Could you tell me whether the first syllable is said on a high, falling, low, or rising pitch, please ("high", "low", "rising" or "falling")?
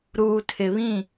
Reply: low